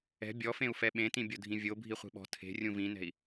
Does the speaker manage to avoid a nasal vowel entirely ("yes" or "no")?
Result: no